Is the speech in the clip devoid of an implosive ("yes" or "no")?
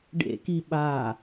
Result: no